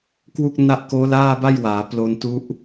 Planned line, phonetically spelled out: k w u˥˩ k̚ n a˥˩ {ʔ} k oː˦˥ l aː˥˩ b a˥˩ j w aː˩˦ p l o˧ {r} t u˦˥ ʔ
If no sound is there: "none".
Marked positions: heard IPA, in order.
ʔ, n

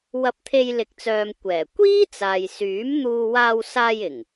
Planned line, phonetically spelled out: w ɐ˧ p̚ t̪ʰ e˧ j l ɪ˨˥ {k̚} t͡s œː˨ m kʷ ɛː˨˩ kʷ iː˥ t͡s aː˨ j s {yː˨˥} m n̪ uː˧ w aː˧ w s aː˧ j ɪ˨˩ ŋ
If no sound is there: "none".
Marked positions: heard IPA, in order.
k̚, yː˨˥

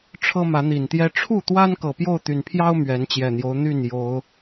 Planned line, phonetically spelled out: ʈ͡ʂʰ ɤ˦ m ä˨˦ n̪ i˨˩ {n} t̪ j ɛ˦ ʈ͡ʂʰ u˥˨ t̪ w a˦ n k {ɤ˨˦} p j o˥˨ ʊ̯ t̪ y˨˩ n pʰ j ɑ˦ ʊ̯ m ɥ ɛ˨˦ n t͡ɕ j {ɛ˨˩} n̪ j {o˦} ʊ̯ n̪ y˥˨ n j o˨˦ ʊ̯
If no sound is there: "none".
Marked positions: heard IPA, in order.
n, ɤ˨˩, ɛ˨˩, o˦

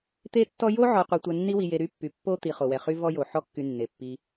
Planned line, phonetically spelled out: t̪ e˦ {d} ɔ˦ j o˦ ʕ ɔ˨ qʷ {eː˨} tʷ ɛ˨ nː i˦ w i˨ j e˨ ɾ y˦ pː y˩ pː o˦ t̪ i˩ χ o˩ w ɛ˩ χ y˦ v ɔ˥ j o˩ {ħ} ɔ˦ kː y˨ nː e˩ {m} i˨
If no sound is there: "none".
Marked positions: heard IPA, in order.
tː, e˨, ħ, pː

